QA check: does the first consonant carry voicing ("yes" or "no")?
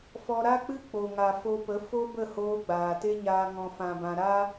no